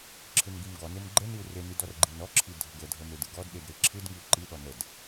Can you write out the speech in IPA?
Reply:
ǁʰɯnɡimɡɔnem ɡ͡ǃəniu̯ renid ɔrɡ͡ǃinɔǁʰi dʱəɡədʱə medɯɡɔdɗed ɾeǁʰɯdŋiu̯ ǃiɗɔ nəd

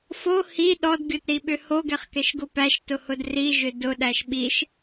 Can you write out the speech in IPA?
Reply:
fo hi ɗɔdɡʲotɾiɓʏ hoɡɛχkɛʃɡʊ pæʃtʊhʊd riʒʏ dʊɗæʃ ɓiʃ

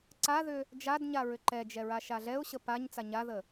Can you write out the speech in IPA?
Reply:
ǀaðʏ | d͡ʒadɲa ɹʏǃɛd͡ʒɛ ɹaʃaɮɛʊ̯ɕə paɲ t͡saɲaðə

